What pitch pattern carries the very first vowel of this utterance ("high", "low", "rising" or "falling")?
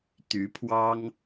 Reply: rising